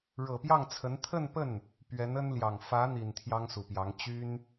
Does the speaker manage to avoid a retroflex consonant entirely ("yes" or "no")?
no